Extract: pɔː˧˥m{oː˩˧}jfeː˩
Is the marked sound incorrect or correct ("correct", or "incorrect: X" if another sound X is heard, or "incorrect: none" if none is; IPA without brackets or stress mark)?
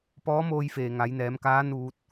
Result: incorrect: oː˧